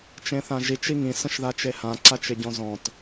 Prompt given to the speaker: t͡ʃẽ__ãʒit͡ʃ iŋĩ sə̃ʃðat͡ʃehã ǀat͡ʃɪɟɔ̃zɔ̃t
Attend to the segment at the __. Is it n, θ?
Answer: θ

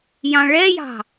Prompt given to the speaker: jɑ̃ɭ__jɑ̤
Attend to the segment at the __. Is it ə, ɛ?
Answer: ɛ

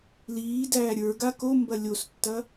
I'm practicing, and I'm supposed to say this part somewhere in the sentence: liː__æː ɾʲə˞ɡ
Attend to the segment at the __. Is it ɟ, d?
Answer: d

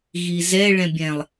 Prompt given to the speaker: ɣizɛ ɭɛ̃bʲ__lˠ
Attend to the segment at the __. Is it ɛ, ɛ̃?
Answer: ɛ̃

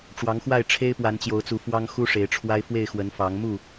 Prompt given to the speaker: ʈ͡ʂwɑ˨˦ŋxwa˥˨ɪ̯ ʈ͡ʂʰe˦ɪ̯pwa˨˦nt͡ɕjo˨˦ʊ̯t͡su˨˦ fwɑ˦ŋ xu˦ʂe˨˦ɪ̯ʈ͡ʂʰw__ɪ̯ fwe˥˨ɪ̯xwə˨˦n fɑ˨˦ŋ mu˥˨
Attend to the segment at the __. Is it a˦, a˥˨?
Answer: a˦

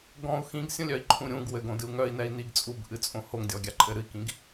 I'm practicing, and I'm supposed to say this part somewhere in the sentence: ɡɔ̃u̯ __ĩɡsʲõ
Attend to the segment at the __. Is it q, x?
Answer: x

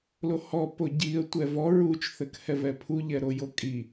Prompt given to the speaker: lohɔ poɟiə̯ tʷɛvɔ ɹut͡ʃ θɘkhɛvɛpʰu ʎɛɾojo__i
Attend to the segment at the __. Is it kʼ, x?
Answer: kʼ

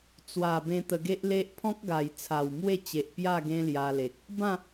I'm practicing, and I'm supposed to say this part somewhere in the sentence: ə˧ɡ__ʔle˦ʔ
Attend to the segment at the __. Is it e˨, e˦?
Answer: e˦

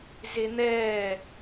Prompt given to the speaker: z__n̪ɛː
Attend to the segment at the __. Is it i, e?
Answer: e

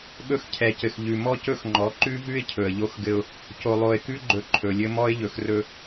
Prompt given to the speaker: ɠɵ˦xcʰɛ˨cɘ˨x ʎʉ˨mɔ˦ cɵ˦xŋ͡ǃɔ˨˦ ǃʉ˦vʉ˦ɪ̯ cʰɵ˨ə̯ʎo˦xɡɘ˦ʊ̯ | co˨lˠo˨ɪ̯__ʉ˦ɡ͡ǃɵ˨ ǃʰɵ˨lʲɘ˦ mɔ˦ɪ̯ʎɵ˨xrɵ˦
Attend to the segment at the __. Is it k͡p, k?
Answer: k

